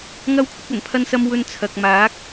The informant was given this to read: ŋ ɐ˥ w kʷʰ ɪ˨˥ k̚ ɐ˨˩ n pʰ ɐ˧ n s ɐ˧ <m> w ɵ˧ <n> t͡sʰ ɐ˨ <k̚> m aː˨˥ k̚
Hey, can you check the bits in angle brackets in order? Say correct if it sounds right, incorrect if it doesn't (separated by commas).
correct, correct, correct